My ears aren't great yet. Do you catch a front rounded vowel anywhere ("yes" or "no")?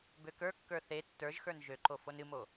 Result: yes